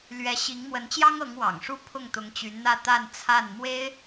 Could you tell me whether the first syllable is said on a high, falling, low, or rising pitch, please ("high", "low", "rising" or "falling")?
rising